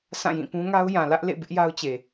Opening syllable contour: falling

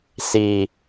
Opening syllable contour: low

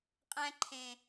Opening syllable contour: high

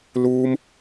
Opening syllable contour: high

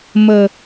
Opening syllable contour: low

